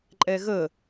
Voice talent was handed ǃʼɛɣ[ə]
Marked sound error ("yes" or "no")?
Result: no